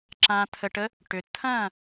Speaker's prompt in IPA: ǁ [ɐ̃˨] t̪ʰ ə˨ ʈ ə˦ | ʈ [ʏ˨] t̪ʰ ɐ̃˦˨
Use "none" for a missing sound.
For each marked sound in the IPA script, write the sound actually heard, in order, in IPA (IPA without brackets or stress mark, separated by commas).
ã˨, ʏ˨